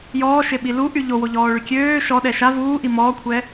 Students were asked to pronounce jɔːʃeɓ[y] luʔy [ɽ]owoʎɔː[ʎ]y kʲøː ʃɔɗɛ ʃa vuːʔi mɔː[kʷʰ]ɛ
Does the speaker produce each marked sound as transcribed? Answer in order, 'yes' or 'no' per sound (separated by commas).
no, no, no, yes